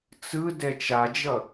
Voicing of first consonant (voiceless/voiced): voiceless